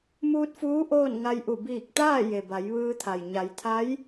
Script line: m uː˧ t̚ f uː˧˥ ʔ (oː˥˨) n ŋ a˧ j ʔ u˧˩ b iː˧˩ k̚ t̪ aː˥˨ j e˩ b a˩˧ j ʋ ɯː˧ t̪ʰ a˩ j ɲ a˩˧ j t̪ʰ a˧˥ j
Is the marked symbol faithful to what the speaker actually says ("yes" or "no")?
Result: yes